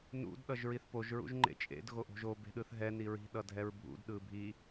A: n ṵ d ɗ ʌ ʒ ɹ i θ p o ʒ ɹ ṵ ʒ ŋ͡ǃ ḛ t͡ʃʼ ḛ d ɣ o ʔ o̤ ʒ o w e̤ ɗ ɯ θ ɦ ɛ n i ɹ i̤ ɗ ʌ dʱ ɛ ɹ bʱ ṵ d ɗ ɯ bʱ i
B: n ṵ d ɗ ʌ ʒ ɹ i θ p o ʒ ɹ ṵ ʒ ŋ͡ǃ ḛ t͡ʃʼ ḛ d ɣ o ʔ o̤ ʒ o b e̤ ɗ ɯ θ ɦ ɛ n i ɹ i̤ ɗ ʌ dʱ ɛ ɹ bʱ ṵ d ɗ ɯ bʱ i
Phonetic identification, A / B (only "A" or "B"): B